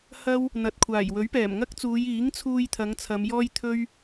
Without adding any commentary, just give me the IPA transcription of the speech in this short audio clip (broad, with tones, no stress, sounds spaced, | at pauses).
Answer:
h ɐ˥ w | n̪ ɐ˨ t̚ kʷʰ aː˨˩ j w ɵ˨˥ ɥ p ɛː˨˩ m ŋ ɐ˥ k̚ t͡s uː˨˧ j iː˨˥ ŋ t͡sʰ uː˧ j t̪ʰ ɐ˨˧ ŋ t͡sʰ ɐ˨˧ m j ɔː˥ j t̪ʰ ɵ˥ ɥ